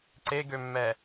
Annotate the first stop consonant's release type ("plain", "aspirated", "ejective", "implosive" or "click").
click